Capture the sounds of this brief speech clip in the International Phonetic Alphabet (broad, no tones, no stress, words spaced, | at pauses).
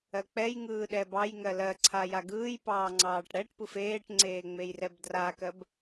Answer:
ɜk͡pɛj ŋɯːɗɛbɑj ŋɜlɜ ǀʰajaɡɯːj pɑːŋ͡ǀɑːʈɽɛʈpɯf eːʈŋ͡ǀeːŋ͡mejrɛb drakɜb